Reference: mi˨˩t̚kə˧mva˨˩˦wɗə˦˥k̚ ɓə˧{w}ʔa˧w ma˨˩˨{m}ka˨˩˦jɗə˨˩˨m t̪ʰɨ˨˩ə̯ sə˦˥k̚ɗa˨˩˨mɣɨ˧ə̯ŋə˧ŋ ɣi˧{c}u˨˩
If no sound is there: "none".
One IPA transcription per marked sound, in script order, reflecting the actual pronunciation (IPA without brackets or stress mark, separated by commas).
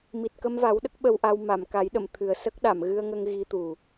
w, m, t̪